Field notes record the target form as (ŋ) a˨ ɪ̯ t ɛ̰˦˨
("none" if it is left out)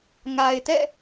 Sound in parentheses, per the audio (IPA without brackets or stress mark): ŋ